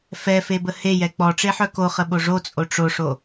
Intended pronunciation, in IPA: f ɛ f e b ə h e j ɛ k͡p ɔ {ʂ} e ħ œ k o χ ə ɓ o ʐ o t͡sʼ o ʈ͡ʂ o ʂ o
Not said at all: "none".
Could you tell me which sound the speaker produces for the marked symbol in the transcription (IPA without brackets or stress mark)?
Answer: ʈ͡ʂ